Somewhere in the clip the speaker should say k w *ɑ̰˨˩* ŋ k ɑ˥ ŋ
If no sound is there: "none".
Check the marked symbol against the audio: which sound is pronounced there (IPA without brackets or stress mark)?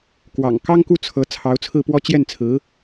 ɑ̰˨˩